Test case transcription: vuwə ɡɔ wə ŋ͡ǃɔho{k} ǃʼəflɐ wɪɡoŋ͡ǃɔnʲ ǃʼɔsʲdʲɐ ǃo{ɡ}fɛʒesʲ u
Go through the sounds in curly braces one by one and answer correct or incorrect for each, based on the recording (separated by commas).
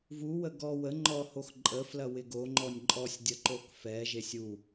incorrect, incorrect